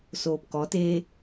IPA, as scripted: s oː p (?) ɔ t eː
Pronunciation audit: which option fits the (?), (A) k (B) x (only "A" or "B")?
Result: A